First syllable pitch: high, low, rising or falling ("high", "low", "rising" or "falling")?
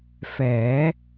rising